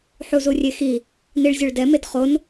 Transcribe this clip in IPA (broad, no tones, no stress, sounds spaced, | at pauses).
ħ u z u rʲ e x i | n i ɭ zʲ o ɭ d ɛ m e d χ o n